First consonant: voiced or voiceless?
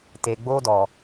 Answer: voiceless